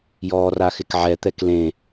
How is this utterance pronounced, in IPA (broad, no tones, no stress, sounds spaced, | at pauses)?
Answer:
j ɔː r a x ɪ k ʕ ɛ t̪ ɛ k l ẽ